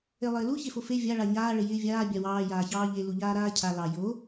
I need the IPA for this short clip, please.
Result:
e lˠ ɪː l u ç e f o f e vʲ a ɭ a ɲ aː ɭ ɪ j ɪː vʲ aː bʲ a w ɑː j aː ç ɑː ʎ e l u ʎ aː ɾ aː cʰ a l ɑ j o

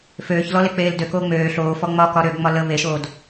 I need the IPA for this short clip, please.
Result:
f øː ç l ɔ l e k͡p eː l d ø k oː ŋ͡m øː ɬ oː f ɔ ŋ͡m ɒ k ɒ ɾ ø ɡ ŋ͡m ɒ l ə β e ʃ oː d

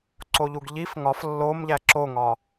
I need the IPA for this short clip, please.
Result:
ǀ o ʎ u ɡ ʎ i f ŋ ɒ f lː o m ʎ æ ǁ o ŋ ɒ

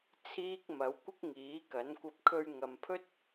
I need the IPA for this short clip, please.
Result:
t͡sʰ iː˥ k̚ m ɐ˨˥ w kʷ ɪ˥ k̚ ŋ iː˨˥ k ɐ˨˥ n kʷ ɐ˧ p̚ kʰ ɵ˧ ɥ ŋ ɐ˨ m pʰ ɵ˥ t̚

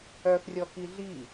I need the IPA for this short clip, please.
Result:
œ x rʲ ɔ k i ɮ i

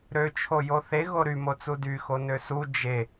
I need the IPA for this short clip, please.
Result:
ɾ ø t͡ʃʰ o j o θ e ɣ o ɾ y m o t͡s u d y x o n ø s u d͡ʒ e

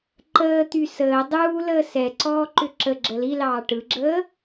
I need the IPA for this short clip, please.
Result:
ǃ əː t̪ y s əː dˤ uː l əː s ɛ ǀ ɔː ǃ ʏ ǁ ə ɡ͡ǁ ə l i l ɑː ʈ ɯ ɡ͡ǁ əː

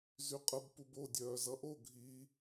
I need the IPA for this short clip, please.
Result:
z y qʼ ə b p u b o dʲ œː z ʌ ʔ o ɡʱ i

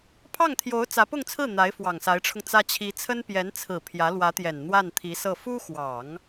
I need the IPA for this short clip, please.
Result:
pʰ ɑ˥˩ ŋ t̪ʰ j o˧˥ ʊ̯ t͡s ä˧˥ p ʊ˥˧ ŋ t͡sʰ ɹ̩˥˩ n̪ a˧˥ ɪ̯ f w ɑ˨˩ ŋ s a˧˥ ɪ̯ ʈ͡ʂʰ ʊ˧ ŋ t͡s ä˥ t͡ɕʰ i˧˥ t͡sʰ ə˥ n p j ɛ˧˥ n t͡sʰ ɹ̩˨˩ pʰ j ä˧˥ l w ä˧˥ t̪ j ɛ˨˩ n n̪ w a˥˩ n t̪ʰ i˧˥ s ɤ˥˩ f u˥ x w ɑ˨˩˦ ŋ

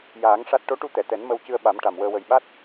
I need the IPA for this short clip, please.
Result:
j aː˨˩˦ ŋ ʂ a˦˥ t̚ ʈ o˧˥ ʈ u˧ t̪ ɛ˨˩˨ t̪ ɛ˨˩˦ n m ə˧ w c ɨ˧ ə̯ ɓ a˨˩˦ m ʈ a˨˩ m w əː˧ w ə˨˩ j ɓ a˦˥ t̚

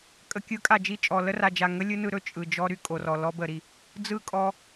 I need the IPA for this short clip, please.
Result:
kʼ ə˨ kʲ ɯ˨˦ kʼ a˨ d͡ʒ i˦˨ t͡ʃʼ ɔ˨ l ə˦ r a˨ d͡ʒ a˨ ŋ ə˦ lʲ ɯ˦ n ɯ˧ ɾ ɵ˧ t͡ʃʼ ɯ˨ d͡ʒ ɔ˦ ɾ y˧ kʼ o˨ r ɔ˨ l ɔ˧ b ə˨ ɾ i˨ | d͡z ɯ˦˨ kʼ ɔ˧

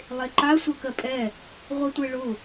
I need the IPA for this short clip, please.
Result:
lˠ e ǃ a sʷ ɜ k ɜ pʼ ɛ | ʁʷ ɛ tʷ e ɭ ʊ

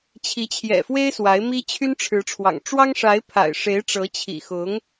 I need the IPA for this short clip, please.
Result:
t͡ɕʰ i˧˥ t͡ɕʰ j ɛ̰˨˩ f w e˥ ɪ̯ s w a˧˥ ɪ̯ m i˥ t͡ɕʰ y˥ n ʈ͡ʂʰ ɻ̩˧˥ ʈ͡ʂʰ w ɑ̰˨˩ ŋ ʈ͡ʂ w ɑ˥ ŋ ʂ a˧˥ ɪ̯ pʰ a̰˨˩ ɪ̯ ʂ e˧˥ ɪ̯ ʈ͡ʂ ɤ˧˥ t͡ɕʰ ḭ˨˩ x ʊ˧˥ ŋ

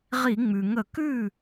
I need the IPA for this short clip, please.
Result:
ʁ i˧˩˧ ŋ͡m ʉ˩ ŋ ə˧˩˧ k ʉ˥˩

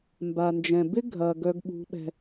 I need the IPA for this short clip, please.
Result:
m b a˨ n d͡ʒ ɛ̃˨ b ɪ˦ ɡʱ ɐ˨ ɡ œ˦ ɡ ɓ ṳ˦ ɓ ɛ̤˦

